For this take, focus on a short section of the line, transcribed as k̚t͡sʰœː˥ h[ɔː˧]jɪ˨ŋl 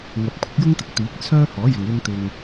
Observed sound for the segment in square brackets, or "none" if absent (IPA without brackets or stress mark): ɔː˨˥